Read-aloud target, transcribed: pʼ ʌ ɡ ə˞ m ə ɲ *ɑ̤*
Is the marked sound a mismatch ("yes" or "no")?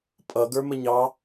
yes